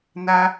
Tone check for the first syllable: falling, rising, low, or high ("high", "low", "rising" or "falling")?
high